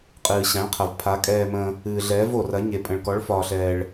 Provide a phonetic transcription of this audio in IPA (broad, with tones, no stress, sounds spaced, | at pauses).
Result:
qʼ ɨː˨ ɕ ã˨˥ ɭ qʰ ɐ˨ v pʰ a˨˥ kʼ ɛː˨ m ə̃ː˨ | ɨː˨ ɮ ɛː˨˥ v o˨ r ɐ˨˥ ɲ e˨ pʼ ə̃˨ ɭ k ɔ˨˥ ɭ f ɒː˨ ɬ ɛː˨ ɭ